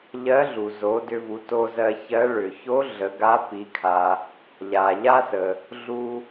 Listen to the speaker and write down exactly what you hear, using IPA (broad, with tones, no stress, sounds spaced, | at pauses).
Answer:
ʎ ɜ˧˥ ɮ u˩ z o˩˧ d ʏ˧ v u˩˧ t o˧ z ɜ˧ ç ɜ˧˥ ɭ ʏ˩ ç o˧˥ ɮ ə˩˧ ɡ a˧˥ p i˩˧ kʰ a˩ | ʎ a˩ ʎ a˥ s ə˩ | ɮ u˧